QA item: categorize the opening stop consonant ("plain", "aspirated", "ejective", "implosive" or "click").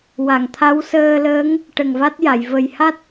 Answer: aspirated